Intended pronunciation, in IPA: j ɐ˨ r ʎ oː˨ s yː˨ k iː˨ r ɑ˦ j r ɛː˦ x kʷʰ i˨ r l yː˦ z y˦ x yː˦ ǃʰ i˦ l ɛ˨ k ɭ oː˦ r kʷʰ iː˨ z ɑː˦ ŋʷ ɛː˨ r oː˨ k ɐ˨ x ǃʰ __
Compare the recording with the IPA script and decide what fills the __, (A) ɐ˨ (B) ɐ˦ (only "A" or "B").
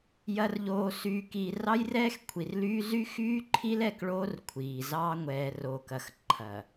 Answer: A